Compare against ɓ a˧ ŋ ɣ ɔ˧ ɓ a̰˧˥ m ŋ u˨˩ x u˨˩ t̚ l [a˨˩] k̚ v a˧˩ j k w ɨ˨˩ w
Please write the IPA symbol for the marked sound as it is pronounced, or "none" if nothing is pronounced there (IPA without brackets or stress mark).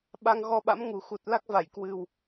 a˦˥